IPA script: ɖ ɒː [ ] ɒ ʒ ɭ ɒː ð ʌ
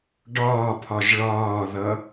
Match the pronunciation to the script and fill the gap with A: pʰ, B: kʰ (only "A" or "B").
A